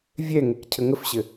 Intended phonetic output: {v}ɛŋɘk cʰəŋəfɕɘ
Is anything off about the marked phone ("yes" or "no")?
yes